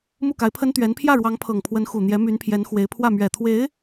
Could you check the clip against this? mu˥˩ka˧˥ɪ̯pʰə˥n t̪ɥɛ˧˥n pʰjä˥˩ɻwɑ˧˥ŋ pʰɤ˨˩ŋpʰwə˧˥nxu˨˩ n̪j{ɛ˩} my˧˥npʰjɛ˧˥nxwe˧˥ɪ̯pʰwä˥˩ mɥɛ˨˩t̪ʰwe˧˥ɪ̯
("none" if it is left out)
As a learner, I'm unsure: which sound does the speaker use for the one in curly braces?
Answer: ɛ˧˥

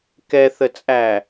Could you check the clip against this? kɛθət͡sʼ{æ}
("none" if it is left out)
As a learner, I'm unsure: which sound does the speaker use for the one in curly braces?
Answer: æ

